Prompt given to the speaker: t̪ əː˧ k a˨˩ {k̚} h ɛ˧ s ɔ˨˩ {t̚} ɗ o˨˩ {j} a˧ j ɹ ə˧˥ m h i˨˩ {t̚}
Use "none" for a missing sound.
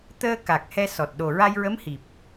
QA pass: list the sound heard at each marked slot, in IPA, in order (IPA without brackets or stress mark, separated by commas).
k̚, t̚, ɹ, p̚